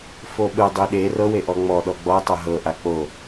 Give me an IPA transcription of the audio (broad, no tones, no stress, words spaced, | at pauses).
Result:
foɓɯ dˤiɗe rɤweʔɔ ŋ͡mɔ ɗɔɡ͡bɔɪ̯tˤɤ ɦɤʔa k͡po